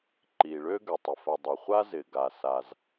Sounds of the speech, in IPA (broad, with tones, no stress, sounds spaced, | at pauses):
ǃ i˩ ɭ ø˥ ɡ ø˩ tˤ ɪ˩ f ɐ˩ dˤ ɐ˩ χʷ a˥ z ɪ˩ ɡ a˩ s a˩ z